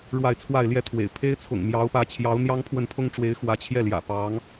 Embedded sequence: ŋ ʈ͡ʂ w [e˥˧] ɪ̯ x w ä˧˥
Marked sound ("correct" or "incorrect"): incorrect